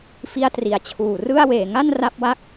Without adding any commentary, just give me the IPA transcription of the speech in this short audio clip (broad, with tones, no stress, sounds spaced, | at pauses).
f i˥˩ a̯ t r i˩˦ a̯ t͡ɕʰ uː˨˩ r ɯ˥˩ a̯ w eː˨˩ ŋ a˥˩ n r a˥˩ p̚ w a˥˩ k̚